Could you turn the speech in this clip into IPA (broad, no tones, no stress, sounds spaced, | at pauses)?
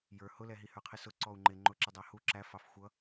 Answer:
j ə˞ h ʊ l ɛ ɦ i h ə˞ qʰ ɪ s ʊ ǀ ɔ u̯ ŋ͡ǃ ɪ ŋ͡ǃ ʊ ǁ ɪ dˤ æ h u ǁ æ f ɑ f xʷ ʌ